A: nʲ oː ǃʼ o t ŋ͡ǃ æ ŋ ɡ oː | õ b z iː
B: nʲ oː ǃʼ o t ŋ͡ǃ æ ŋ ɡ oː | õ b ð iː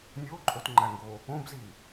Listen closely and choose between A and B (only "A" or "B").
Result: A